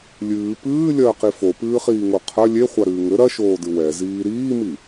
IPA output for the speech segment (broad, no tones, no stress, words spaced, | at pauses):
lʲɨː pɨːlʲɐːqi fopɨːχiːŋo qʰɐ lʲeχʷaɾɨː ŋɘ ɾɐʃoːdɨ wɛziː ɾiːmi